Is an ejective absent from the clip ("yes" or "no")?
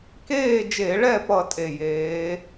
no